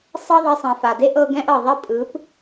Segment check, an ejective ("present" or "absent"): present